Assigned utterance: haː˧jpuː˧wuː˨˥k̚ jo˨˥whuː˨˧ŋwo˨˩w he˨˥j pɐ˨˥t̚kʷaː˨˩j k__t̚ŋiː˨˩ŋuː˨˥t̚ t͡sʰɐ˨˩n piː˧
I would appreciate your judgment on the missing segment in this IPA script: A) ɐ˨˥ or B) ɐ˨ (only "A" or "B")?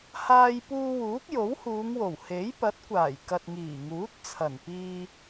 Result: B